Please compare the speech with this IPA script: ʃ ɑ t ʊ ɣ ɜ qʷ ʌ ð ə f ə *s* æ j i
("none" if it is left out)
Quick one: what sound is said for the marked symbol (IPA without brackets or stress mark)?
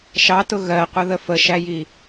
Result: ʃ